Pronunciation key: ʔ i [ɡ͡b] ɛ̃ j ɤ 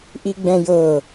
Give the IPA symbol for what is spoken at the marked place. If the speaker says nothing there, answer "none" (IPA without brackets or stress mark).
ɡ͡b